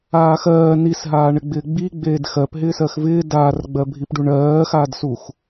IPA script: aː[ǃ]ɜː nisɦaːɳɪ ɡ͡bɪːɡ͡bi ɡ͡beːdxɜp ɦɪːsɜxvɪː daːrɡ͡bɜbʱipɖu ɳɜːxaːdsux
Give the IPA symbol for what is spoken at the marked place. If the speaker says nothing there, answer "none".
x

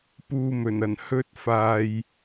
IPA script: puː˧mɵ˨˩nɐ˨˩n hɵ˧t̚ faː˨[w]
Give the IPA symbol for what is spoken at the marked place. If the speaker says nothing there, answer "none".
j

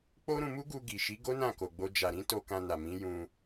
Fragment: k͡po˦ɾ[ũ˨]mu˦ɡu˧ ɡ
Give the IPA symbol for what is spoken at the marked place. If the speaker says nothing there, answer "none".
ũ˧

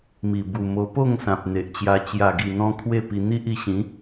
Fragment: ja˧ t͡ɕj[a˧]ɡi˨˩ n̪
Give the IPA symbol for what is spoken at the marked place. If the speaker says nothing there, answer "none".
a˨˩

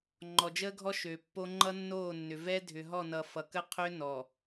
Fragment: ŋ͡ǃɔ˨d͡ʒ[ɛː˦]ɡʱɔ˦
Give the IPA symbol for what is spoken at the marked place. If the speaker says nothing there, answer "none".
əː˦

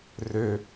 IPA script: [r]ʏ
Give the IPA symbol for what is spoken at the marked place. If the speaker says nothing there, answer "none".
r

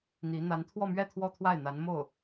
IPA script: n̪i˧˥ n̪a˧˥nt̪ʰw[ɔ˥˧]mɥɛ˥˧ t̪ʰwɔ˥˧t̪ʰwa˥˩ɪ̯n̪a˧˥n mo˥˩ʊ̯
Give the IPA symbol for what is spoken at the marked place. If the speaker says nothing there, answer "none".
ɔ˥˧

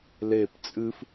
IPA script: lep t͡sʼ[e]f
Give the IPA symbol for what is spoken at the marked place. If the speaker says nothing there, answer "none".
ɨ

